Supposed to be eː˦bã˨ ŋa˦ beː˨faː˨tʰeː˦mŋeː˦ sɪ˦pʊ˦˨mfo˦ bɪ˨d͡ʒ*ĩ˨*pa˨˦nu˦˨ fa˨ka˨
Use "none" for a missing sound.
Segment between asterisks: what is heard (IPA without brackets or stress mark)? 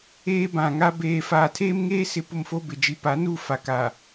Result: i˨